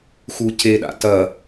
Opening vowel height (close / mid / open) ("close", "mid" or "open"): close